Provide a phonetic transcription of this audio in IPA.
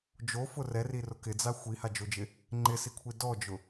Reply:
d͡ʒ o f ʊ r ɛ r i r ʊ k ɪ d͡z a xʷ i h a d͡ʒ o d͡ʒ ɪ | ŋ͡ǃ ɪ s i kʷʰ i d ɔ d͡ʒ ʊ

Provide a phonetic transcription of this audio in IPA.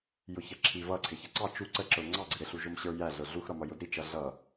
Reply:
j ʊ ç ʌ ǁʰ i v ʌ ǀʰ ɪ ç ʌ ǀ ɑ t͡ʃ u ǀ ə ǁ ə˞ ŋ͡ǀ ɑ ɡ͡ǀ ɪ ɾ ɪ ɬ u ʒ ʊ m ɕ ə˞ j æ ɮ ə˞ ɮ u x ɾ ʌ m ʌ j ʊ d ɾ i t͡ʃ ʌ ɮ ʌ

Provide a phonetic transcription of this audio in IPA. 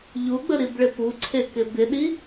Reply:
ʎ u ɡ͡b ə ɾ i b ɭ ɪ p u ǀʰ e k ɪ b ɪ ɗ i

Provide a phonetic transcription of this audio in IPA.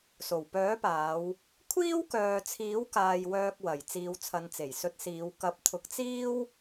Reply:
s o˨˩ w p œː˨˥ p aː˨˧ w | kʷʰ iː˥ w k œː˨ t͡sʰ iː˨˥ w k aː˨ j w œː˧ k̚ w ɐ˨˩ j t͡s iː˨˧ w t͡sʰ ɐ˨˧ n t͡s e˨˩ j s ɵ˧ t̚ s iː˨˧ w k ɐ˨˥ p̚ t̪ʰ ʊ˨˥ k̚ t͡s iː˥ w

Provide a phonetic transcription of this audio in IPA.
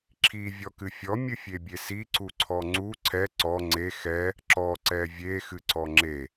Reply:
ǁʰ i vʲ ɔ k ɨ fʲ ɔ mʲ ɨ fʲ e bʲ e s i ǀ u ǀʰ ɔ ŋ͡ǀ u ǀʰ ɛ ǀ ɔ ŋ͡ǀ e x ɛ | ǁ ɔ ǀ ɛ vʲ e x ɨ ǀ ɔ ŋ͡ǁ e

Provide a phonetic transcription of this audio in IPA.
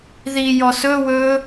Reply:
ð i j ɔ s ɵ w ɵ

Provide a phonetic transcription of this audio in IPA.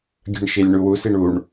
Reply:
ɡʲ ə̤ ɳ ʃ i lʲ ɳ u w u s i ɳ u ɳ

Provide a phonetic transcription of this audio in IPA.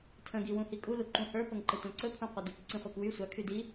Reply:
tʰ ə̃ ɡ i w ũ h i kʼ u l u ǃ ũ h ə˞ p ɤ ŋ ǃ ə tʷ ã ǀ ɵ pʰ ũ qʷ a d y k ǀ ĩ χʷ a k w y sʷ a kʰ y d i

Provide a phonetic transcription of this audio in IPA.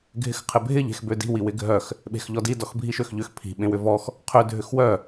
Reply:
ɡʱ ɪ x qʰ ɪ bʱ ɪ ʎ e̤ x b ø d i̤ w i w ɪ ɡʱ œ x | ɓ e̤ x ʎ ɔ d i d ɔ x bʱ i ʃ ø x ʎ ʏ x pʰ i̤ ɓ ẽ w ʏ v ɔ x | qʰ ø dʱ ʏ x w œ

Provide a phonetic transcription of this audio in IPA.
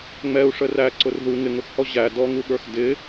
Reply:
ŋ͡m ɛ u̯ ʂ ə r æ ǀ ʊ r ð u ŋ ɪ ŋ ʊ x h ɔ ʑ æ d ɔ ŋ u ɠ ə˞ x d ɪ

